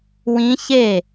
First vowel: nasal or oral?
nasal